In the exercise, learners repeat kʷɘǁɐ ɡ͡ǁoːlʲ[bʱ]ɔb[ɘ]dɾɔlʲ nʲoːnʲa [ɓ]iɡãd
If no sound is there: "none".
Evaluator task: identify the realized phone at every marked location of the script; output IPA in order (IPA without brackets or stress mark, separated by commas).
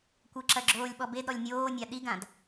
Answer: ɓ, e, ɗ